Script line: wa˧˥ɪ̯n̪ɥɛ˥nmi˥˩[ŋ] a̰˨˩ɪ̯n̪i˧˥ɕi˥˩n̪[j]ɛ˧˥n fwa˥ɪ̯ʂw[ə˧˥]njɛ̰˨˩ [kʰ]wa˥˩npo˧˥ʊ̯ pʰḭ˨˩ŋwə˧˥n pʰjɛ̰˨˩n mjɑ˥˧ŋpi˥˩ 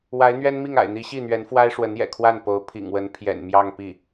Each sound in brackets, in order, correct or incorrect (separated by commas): correct, incorrect, correct, correct